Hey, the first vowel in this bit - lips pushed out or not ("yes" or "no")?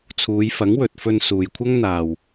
yes